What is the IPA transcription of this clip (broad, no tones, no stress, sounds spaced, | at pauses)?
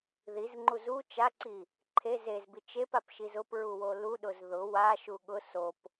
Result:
ð i z ŋ͡ǃ u z u t͡ʃ a ǀ i | ǃʰ e z e z b i t͡ʃ e p a p ʃ i z ʊ p ɹ u w o l u ɗ ʊ z ð ʊ w a ʃ u ɠ ʊ s o p